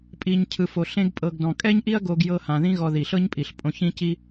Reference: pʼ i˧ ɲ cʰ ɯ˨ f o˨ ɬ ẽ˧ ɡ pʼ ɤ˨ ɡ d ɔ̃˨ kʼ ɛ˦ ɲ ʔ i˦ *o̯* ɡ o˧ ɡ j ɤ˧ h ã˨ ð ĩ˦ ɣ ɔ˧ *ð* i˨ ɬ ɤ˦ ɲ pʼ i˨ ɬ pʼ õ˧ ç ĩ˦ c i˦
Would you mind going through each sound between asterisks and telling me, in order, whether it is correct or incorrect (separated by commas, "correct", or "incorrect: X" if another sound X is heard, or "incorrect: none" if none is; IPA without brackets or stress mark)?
incorrect: ɐ̯, correct